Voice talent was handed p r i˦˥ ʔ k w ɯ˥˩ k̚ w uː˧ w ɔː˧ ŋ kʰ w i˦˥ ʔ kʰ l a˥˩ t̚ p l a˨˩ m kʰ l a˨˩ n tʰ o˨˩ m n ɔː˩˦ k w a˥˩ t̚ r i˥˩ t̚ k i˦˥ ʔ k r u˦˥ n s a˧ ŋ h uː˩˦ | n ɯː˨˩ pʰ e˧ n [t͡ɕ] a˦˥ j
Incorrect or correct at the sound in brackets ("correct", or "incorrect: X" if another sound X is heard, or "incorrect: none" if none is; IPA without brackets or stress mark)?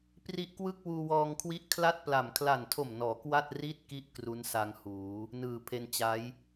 correct